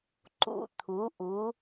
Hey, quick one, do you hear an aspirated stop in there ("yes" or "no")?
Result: yes